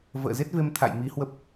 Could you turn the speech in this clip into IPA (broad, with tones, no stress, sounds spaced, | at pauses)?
v ə̰ː˧˨ z e˦˥ t̚ v e˧ m t̪ʰ a̰˧˨ j m i˨˦ h w ə˦˥ p̚